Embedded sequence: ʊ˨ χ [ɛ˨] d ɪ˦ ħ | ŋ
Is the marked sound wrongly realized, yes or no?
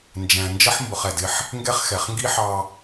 no